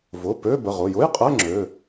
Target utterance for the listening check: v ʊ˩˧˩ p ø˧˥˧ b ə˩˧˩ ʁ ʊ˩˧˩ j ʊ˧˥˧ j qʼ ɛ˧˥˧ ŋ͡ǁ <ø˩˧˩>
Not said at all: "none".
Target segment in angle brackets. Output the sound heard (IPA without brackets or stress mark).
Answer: ø˩˧˩